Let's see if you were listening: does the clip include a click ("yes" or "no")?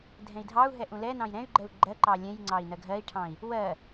yes